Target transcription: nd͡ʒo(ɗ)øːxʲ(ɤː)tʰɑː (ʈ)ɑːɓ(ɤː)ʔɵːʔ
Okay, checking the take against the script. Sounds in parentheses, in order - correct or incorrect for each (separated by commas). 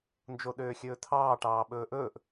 correct, incorrect, correct, incorrect